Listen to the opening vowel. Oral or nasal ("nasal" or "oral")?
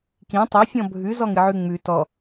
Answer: nasal